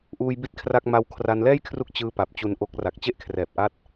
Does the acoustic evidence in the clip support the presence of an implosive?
no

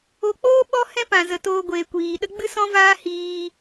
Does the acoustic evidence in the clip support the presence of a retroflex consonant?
no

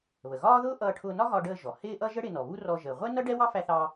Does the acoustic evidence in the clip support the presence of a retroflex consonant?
yes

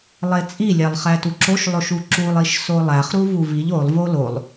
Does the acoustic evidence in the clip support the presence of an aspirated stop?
no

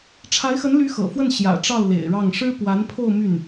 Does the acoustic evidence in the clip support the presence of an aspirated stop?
yes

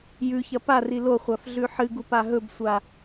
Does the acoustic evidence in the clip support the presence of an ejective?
no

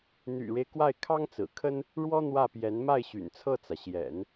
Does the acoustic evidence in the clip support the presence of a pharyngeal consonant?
no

